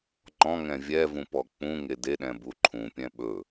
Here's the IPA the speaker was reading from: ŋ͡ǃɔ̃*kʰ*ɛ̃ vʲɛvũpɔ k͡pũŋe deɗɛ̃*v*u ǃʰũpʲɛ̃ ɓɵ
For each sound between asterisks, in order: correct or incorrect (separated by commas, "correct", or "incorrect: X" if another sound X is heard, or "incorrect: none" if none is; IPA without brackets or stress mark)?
incorrect: ŋ, incorrect: b